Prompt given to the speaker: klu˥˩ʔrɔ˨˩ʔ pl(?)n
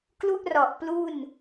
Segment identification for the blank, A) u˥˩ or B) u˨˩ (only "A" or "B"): A